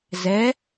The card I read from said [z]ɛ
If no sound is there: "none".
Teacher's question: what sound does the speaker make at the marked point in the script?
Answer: z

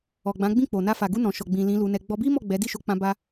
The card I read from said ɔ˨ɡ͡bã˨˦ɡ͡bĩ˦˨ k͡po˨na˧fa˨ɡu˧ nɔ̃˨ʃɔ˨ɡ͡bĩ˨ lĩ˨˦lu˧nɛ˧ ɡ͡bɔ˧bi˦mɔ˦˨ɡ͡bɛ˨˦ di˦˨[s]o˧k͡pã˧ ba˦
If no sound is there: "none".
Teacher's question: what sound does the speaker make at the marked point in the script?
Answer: ʃ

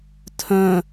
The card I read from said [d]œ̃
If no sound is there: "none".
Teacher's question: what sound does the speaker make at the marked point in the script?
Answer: tʰ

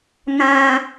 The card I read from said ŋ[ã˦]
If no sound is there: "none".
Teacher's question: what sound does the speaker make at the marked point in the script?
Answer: ã˦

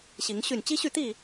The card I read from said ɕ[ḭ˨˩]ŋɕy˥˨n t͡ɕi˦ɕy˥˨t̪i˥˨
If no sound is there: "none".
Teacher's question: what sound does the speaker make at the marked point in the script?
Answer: i˨˦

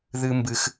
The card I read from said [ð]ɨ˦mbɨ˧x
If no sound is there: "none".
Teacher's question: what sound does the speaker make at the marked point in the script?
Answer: ð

